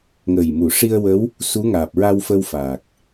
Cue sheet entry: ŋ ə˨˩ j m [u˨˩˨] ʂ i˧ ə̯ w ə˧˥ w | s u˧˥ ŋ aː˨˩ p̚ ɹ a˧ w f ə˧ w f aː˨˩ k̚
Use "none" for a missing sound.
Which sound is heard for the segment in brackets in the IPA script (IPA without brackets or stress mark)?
u˨˩˨